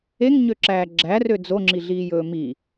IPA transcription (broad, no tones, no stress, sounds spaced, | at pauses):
e ŋ ɲ ø ǁ æː ɡ͡ǁ æ r ø d͡z o ŋ͡ǁ i ɮ iː j ɵː m i